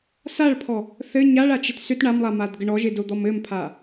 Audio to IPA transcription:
s a ɭ pʰ ɔ | θ ɘ ɲ a ɭ a t͡ʃ ɪ t s ʏ t ɳ a m lˠ a m a d ɡ ə ɳ ɔ ʒ ɪ d o d̪ ɔ m ɘ m pʰ a

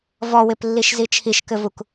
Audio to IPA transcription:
v ɔ w ɪ p lː i ʃ z i t͡ʃʰ i ʃ k ɘ v u k

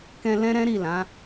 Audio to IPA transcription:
k ɛ̃˧ l ɛ̃˦ ɾ ɛ̃˦ ɾ i˦˨ l ã˨˦

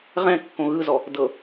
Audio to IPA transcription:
ʁ ɛ̃ kː õ ɣ ɯ z ɔ | d ɤ

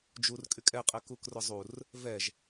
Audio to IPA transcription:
d͡ʒ u r kʼ y kʼ ɛ qʼ ɛ k u k r ʊ zˤ u r | v ɛ ʒ

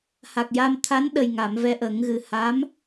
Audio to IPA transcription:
h a˨˩ k̚ j a˧ m t̪ʰ a˧˥ n ɗ ə˨˩ j ŋ a˨˩˨ m v ɛ˧ ʔ ə˨˩˦ ŋ ɣ ɨ˨˩ h a˧˥ m

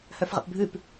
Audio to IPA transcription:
h œ f ʁ ə̰ p bʱ ʉ p

